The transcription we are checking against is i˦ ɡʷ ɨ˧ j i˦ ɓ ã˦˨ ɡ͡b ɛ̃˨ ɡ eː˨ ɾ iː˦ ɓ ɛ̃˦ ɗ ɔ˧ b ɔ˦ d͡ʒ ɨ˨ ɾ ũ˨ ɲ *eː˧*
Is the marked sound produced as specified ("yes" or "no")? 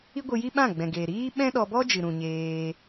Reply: yes